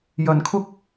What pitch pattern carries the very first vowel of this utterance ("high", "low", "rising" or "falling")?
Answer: low